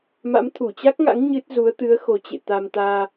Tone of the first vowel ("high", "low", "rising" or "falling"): rising